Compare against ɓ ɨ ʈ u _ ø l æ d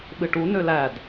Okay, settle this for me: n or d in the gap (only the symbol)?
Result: n